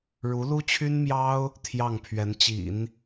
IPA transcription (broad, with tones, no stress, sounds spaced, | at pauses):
ɻ u˧˥ l u˥ t͡ɕʰ y˥ n m j ɑ˥ ʊ̯ | t̪ʰ j ɑ˥˩ ŋ pʰ ɥ ɛ˧˥ n t͡ɕ ḭ˨˩˦ n